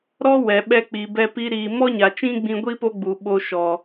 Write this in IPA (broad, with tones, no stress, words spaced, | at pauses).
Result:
ɾɔ˦ wɛ˨ ɓɛ˧k͡pi˨bɛ˧pi˧ ɾiː˨ mɔ˦ɲa˨ t͡ʃĩ˦ɡ͡bĩ˧ɡʷi˦ po˦ɡ͡bu˨ɓo˧ ʃɔ˨